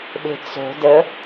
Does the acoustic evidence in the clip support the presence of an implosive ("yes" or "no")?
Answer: yes